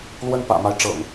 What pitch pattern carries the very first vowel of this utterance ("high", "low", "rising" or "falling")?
high